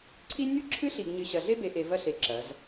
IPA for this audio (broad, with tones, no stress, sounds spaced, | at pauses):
ǀʰ i˦ nʲ o˦ ǁʰ ɨ˦ ɬ i˨ ɡ ɲ ɨ˨ ɕ ɐ˨ ɮ e˦ b e˨ ʔ e˨ v ɐ˦ ɬ e˨ ǁ ɐ˨˦ z